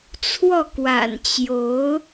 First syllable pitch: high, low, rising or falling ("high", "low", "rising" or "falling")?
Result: falling